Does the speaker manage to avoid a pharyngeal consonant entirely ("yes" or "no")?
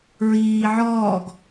no